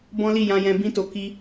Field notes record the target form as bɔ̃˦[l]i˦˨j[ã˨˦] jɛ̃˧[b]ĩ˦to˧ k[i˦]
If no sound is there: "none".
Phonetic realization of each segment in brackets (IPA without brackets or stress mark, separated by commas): l, ã˧, b, i˦